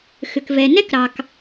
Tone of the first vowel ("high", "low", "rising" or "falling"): low